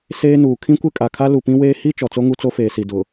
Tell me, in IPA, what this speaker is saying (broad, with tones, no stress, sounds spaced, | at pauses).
s eː˦ n uː˨ kʰ ĩ˦ kʷ ɪ˦ kʼ a˨ kʰ a˦ l u˨ p ĩ˦ w eː˦ h i˦ t͡ʃ ɔ˨ t͡s o˦ ŋ u˦ t͡s o˦ f eː˨ s i˨ d ʊ˨